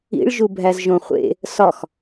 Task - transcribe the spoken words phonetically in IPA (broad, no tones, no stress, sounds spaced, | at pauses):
ḭ ɭ ʒ u bʱ æ z ʒ õ χʷ ḛ | s ɒ x